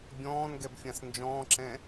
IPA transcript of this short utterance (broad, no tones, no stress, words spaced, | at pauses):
bʲɔ̃ːnɡɛbfʲãs nd͡ʒɔ̃ːǁɛ̃